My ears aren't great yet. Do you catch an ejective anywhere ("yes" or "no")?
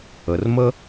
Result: no